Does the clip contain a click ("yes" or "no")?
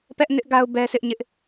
no